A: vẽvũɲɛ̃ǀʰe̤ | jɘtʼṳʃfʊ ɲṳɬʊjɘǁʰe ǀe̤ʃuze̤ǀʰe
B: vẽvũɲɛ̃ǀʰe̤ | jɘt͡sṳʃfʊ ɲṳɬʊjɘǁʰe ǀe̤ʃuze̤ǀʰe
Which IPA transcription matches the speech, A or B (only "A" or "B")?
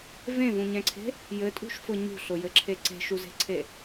A